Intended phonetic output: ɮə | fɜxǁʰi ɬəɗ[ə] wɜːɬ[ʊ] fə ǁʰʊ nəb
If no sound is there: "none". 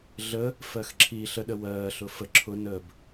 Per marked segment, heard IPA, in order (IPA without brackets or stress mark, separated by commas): ə, ʊ